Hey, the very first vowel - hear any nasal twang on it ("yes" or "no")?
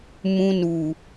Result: yes